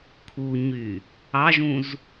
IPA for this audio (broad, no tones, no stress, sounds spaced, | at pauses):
kʰ u ɲ y | ɑ ʒ ũ z